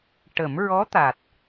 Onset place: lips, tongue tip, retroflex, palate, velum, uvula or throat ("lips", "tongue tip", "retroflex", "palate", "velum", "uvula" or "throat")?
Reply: retroflex